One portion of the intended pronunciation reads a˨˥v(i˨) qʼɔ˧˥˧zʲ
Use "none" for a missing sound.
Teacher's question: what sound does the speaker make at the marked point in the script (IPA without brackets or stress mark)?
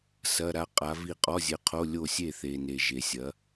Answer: i˥˩